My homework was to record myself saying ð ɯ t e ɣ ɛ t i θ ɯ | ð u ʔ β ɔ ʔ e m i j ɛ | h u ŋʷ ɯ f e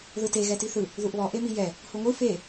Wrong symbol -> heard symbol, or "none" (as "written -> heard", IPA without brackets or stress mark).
none